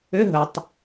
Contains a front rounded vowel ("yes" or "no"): yes